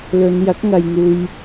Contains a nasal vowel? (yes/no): no